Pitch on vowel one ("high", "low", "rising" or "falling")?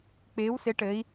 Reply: rising